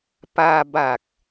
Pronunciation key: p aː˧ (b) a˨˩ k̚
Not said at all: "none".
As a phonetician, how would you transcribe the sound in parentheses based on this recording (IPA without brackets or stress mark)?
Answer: b